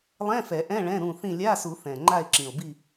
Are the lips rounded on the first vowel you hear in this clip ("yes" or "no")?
no